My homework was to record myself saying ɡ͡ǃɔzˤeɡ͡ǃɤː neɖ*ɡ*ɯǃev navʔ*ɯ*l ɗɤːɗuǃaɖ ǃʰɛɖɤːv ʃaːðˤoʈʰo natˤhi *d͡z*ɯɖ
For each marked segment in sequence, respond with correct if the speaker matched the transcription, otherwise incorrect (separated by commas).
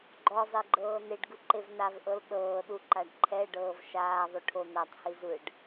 correct, incorrect, incorrect